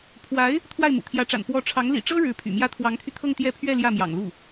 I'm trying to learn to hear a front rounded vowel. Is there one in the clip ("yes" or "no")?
yes